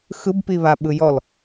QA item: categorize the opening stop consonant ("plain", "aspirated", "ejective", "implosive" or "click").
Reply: plain